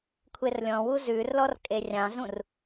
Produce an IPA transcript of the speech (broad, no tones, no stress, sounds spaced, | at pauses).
kʷʰ e r lʲ ɔ̃ w u z ʉ r l ɔ r kʼ e rʲ ɑ̃ z ũ r